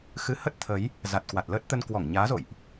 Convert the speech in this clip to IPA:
x ɨ˨˦ h ə˦˥ t̚ t̪ʰ ə˨˦ j | z a˨˩ t̚ k w a˨˩ t̚ l əː˦˥ t̚ t̪ ə˧ n k w ɔ˧˩ ŋ ɲ aː˨˦ z o̰˧˨ j ʔ

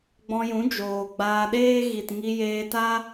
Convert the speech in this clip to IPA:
ɡ͡b ɔ̃˧ j ũ˨˦ d͡ʒ oː˨ ɡ͡b aː˧ ɗ eː˦ ɣ i˨ t ŋ i˧ j eː˧ t a˦

